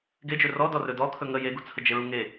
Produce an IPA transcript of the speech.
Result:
ɡ e d͡ʒ ɵ r ɔ d ɔ r ɵ d ɔ kʰ ɵ ŋ ə j e ɡ u t͡sʰ ə d͡ʒ e ɹ u ŋ e

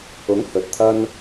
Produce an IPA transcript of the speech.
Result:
ʊ˨˥ ŋ h ɵ˨˥ t̚ t̪ʰ ɐ˥ n

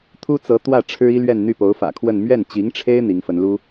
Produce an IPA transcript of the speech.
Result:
t̪ʰ u˥ t͡s ɤ˧˥ t̪ w ä˥˩ ʈ͡ʂʰ ɻ̩˥ i˥ l ɥ ɛ˥˧ n n̪ y˥˩ p o˧˥ ʊ̯ f ä̰˨˩ kʰ w ə˥˧ n m ɥ ɛ˥˩ n t͡ɕ i˧˥ ŋ ʈ͡ʂʰ e˥ ɪ̯ n̪ i˧˥ ŋ f ə˧˥ n l u˥

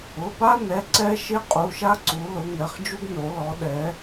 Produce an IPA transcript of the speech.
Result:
ʊ˩˧˩ p a˦ n ɛ˩˧˩ ǀ ɛ˦ ʃ ɪ˦ qʼ u˩˧˩ ʃ a˦ ǀ u˩˧ l ʊ˩˧ ŋ ɛ˩˧˩ χ d͡ʒ u˦ ɡ n o˩˧ l ɔ˩˧ ɗ ɛ˩˧

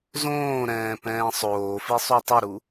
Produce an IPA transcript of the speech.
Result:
z õː ɾ ɛ̃ː p ɛ̃ː sˤ oː f i sˤ u tˤ ʏ ɾ u

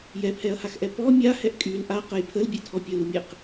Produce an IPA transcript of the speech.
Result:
j ɛ pʰ ɛ ɐ̯ h a x ʔ ɛ p ɔ mʲ a h ɛ ʔ kʼ y l ʔ a q ə j pʰ ə l bʲ ɛ tʰ ɔ pʲ ə l u mʲ ɛ q

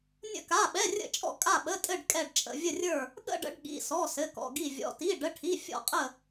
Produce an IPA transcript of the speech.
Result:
nʲ ə̰˥˧ k a˧˥˧ ɓ ɛ˧˥˧ rʲ ə̰˥˧ t͡ʃʼ ɔ̰˥˧ kʼ a˥˧ ɓ ə˧˥˧ tʼ ɘ˥˧ ɖ kʼ ɛ˥˧ ɖ t͡ʃʼ ə̰˧˥˧ vʲ ə˥˧ rʲ ə˞˥˧ | ɠ ə̰˥˧ ɖ ə̰˧˥˧ ɖ ɠ ḭ˧˥˧ s ɔ˧˥˧ s ɘ˧˥˧ k ɔ̰˧˥˧ ɡ i˥˧ vʲ ɔ̰˧˥˧ t i˧˥˧ ɖ ə˧˥˧ ʈʰ i˧˥˧ fʲ ɔ̰˥˧ qʼ ə˥˧

